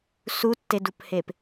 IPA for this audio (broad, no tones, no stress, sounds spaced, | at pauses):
s u tː e d u p h e p